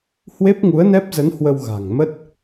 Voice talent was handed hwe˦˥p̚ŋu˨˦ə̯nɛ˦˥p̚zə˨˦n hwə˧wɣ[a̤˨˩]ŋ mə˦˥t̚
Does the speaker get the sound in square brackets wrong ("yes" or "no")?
no